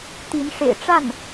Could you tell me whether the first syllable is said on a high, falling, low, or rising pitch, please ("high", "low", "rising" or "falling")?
rising